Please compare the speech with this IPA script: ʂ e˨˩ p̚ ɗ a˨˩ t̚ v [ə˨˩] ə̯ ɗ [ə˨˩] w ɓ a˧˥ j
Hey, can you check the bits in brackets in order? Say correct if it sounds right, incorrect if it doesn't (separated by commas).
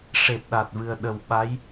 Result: incorrect, correct